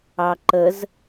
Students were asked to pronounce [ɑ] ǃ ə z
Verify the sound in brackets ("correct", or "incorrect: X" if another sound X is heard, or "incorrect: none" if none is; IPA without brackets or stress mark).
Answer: correct